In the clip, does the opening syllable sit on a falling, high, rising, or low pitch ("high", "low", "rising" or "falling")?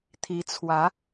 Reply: rising